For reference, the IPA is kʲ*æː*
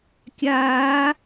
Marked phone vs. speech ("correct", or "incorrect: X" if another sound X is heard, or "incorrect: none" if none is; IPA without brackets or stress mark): incorrect: aː